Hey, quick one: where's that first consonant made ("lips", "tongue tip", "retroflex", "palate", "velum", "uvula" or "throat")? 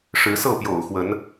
retroflex